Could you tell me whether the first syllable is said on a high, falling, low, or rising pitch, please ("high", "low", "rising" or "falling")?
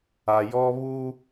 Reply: low